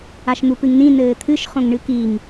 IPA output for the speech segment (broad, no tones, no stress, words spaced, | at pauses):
aʃn̪upɨŋnĩ nɘːt̪ʰɨʃ χõŋɳɨkiŋ